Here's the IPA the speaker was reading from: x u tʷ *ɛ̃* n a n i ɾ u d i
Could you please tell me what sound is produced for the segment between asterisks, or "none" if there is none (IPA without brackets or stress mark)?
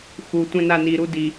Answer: ɛ̃